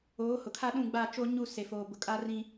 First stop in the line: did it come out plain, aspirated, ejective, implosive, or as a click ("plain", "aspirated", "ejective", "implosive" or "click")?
aspirated